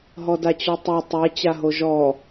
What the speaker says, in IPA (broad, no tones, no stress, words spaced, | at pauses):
ɦɔdat͡ɕɔtˤe tˤɛ t͡ɕaɦoʒɔ